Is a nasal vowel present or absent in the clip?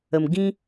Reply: present